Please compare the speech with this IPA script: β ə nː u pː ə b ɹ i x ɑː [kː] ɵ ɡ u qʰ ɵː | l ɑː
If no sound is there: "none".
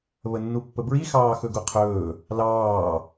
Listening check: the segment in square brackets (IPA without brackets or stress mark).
x